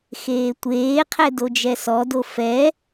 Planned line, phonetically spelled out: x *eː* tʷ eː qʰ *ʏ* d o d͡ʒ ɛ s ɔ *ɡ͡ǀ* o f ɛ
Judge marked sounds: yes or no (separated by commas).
yes, no, no